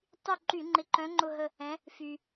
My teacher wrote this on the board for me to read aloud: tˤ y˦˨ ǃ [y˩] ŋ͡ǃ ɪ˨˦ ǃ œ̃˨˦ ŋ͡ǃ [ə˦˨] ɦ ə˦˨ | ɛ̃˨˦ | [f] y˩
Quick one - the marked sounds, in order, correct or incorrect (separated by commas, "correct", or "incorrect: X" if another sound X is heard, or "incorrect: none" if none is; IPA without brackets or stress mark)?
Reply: incorrect: y˧˩˧, incorrect: ʊ˦˨, correct